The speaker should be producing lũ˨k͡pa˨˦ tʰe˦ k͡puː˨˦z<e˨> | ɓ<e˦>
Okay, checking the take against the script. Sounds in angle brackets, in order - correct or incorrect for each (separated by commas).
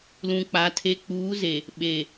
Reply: correct, incorrect